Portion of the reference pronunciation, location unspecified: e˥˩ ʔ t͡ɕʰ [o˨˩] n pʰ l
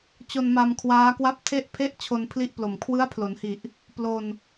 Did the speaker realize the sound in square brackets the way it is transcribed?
no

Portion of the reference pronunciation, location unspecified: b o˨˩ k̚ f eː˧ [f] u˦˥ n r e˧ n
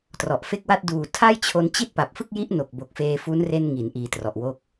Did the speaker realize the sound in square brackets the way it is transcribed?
yes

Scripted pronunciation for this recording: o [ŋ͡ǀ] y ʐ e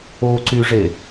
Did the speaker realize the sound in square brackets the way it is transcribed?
no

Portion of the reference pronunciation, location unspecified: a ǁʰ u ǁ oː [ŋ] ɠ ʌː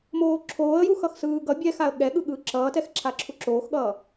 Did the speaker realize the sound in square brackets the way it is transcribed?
no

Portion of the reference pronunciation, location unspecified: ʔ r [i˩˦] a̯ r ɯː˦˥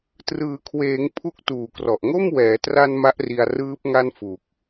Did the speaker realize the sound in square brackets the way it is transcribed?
no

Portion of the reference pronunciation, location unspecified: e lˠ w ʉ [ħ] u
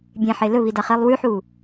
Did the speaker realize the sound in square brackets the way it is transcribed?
yes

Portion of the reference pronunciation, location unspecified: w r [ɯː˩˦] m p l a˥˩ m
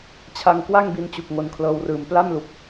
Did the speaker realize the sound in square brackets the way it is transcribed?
no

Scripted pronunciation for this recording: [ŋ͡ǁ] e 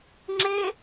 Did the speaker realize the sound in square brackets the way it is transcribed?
yes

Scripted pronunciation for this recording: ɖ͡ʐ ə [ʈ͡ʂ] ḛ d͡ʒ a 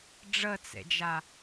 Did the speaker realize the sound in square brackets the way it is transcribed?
no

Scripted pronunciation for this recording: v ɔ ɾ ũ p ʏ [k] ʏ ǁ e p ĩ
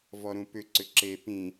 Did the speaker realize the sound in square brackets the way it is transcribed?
no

